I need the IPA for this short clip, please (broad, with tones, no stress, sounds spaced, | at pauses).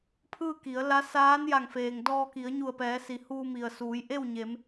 pʰ ɯː˥˨ k i˩˧ ə̯ l a˧˥ s aː˧˥ n j a˧˩ ŋ f eː˩ ŋ d ɔː˧ k i˩˧ ə̯ ɲ u˧˩ ə̯ p ɛː˩˧ s i˩ h uː˧ m i˩ ə̯ s uː˩˧ j ʔ e˥˨ w ɲ e˩˧ m